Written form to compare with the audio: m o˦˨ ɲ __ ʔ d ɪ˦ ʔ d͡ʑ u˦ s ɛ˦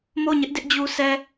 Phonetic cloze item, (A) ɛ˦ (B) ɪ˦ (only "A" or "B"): B